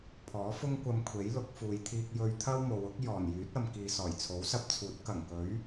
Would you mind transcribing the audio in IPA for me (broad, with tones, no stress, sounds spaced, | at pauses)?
pʰ ɔː˨˥ f ʊ˥ ŋ kʷ ɐ˧ m kʷʰ e˨˥ j l ʊ˨˥ k̚ f uː˨ j t̪ʰ iː˧ k̚ j ɵ˧ ɥ t̪ʰ ɐ˥ w m o˨˧ w ʊ˥ k̚ j ɔː˨˩ n j yː˨˥ t̚ ɐ˨ m k iː˨ s ɔː˨˩ j t͡sʰ o˨˥ w s ɐ˧ p̚ t͡sʰ uː˨˥ t̚ k ɐ˨˩ ŋ k ɵ˨˥ ɥ